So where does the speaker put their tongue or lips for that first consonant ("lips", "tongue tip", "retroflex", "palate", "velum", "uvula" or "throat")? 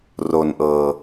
tongue tip